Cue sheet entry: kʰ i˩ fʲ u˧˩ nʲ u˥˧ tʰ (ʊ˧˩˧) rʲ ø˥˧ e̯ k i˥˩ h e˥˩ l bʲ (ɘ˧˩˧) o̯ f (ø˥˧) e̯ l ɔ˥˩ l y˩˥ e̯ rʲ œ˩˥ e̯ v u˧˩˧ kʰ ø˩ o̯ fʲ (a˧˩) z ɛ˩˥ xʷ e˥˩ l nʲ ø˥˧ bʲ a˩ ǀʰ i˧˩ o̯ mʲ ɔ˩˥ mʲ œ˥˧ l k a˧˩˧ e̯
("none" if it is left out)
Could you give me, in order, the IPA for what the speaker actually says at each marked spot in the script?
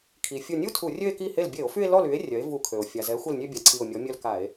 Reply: u˧˩˧, e˧˩˧, y˥˧, a˩

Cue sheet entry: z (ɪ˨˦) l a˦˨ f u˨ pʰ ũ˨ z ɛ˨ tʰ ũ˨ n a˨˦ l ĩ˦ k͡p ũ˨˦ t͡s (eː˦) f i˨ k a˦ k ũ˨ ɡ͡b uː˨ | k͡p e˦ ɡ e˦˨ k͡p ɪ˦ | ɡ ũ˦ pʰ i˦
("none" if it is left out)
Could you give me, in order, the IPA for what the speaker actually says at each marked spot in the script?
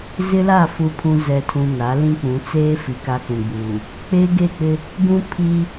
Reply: ɪ˦, eː˦

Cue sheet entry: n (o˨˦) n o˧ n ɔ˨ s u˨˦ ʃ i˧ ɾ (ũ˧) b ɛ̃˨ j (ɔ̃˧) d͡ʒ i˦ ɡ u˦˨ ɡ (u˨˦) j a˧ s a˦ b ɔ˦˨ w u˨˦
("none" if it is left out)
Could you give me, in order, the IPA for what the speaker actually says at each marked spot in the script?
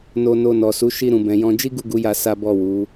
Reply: o˧, ũ˨, ɔ̃˧, u˨˦

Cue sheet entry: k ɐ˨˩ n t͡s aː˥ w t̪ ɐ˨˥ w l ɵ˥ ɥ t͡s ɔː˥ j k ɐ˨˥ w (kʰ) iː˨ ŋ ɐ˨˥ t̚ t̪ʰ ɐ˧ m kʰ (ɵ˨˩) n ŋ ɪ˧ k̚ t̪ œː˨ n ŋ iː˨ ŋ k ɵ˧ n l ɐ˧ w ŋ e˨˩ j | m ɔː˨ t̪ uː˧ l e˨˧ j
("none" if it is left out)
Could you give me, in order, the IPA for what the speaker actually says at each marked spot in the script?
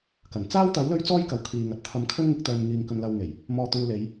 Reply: kʰ, ɵ˥

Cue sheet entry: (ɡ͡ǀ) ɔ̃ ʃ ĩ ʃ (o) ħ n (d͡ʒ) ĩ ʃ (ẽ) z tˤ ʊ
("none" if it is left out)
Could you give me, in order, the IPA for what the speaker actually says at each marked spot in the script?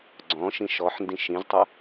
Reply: ɡ͡ǀ, ɔ, d, ĩ

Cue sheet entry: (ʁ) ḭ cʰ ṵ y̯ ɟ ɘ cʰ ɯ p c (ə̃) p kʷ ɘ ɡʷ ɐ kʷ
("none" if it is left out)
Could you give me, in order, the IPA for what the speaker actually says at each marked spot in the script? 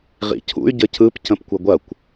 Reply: ʁ, ə̃

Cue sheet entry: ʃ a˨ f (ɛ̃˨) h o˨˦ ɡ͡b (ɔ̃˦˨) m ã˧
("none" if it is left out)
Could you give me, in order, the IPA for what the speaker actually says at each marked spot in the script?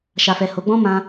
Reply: ɛ˨, ɔ̃˦

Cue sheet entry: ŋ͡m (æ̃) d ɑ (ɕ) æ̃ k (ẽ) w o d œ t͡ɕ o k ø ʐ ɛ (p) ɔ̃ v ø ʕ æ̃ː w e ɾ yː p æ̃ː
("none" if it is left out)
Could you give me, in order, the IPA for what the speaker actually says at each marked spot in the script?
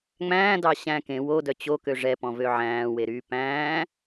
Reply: æ̃ː, ɕ, ẽ, p

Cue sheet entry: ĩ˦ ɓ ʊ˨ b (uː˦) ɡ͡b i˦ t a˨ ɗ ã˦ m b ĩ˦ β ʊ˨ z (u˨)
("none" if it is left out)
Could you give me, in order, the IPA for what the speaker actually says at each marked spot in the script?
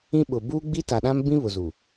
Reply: uː˦, u˨

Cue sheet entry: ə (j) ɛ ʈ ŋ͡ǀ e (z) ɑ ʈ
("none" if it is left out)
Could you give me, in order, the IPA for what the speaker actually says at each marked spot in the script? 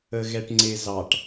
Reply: ɣ, z

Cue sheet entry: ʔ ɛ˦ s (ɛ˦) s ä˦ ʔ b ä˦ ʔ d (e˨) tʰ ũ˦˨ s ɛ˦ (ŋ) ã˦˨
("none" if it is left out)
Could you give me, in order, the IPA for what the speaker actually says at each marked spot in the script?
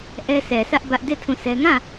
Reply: ɛ˨, e˦˨, ŋ

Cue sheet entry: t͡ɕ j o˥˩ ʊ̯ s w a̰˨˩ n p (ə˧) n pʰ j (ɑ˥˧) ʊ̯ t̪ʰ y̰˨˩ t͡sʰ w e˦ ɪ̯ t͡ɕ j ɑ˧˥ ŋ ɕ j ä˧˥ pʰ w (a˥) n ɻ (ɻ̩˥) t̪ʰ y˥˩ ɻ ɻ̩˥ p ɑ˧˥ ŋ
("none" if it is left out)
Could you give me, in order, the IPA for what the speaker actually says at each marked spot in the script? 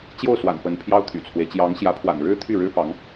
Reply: ə˧˥, ɑ˥, a̰˨˩, ɻ̩˥

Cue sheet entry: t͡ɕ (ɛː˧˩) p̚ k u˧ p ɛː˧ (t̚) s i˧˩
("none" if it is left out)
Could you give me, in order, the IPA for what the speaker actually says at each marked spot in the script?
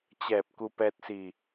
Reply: ɛː˧˩, t̚

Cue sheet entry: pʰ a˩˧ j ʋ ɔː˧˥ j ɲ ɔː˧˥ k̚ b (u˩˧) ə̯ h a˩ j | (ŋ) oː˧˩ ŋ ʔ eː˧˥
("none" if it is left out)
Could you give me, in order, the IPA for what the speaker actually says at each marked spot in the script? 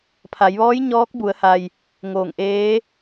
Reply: u˩˧, ŋ

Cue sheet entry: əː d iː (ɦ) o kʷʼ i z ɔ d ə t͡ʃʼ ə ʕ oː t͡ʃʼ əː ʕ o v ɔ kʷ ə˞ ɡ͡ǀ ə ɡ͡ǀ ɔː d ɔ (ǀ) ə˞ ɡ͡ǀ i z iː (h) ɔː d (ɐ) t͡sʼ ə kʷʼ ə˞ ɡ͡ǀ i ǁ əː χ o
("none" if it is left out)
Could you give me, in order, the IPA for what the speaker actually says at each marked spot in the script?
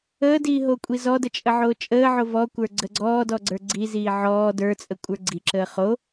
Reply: ɦ, ɡ͡ǀ, ʕ, ə˞

